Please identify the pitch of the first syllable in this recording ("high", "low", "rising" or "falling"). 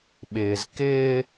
low